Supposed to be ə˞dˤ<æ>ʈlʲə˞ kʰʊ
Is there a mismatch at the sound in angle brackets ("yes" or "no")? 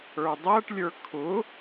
no